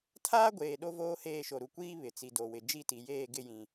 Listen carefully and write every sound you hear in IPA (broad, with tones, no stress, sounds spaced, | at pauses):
tʰ aː˦ ɡʷ eː˨ ɗ o˦ v oː˦ h eː˦˨ ʃ o˨ ɾ u˨ kʷ iː˦ β ɪ˨ t͡s i˨ d o˨ w ɪ˨ d͡ʒ i˦˨ t i˨ j eː˦˨ ɡ ɪ˦˨ j ĩ˨